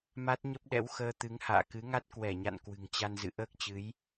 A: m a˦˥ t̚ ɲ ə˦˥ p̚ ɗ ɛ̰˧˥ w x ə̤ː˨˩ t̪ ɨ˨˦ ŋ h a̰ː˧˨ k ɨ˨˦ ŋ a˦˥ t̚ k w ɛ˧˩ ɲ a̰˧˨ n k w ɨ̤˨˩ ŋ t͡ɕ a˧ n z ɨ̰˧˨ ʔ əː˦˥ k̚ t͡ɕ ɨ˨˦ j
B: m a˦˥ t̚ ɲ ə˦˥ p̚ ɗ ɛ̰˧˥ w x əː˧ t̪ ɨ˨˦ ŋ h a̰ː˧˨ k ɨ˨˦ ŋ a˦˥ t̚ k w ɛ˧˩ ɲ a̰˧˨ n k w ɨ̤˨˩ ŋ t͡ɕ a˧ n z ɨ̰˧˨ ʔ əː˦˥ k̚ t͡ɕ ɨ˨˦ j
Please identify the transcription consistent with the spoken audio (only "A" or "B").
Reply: B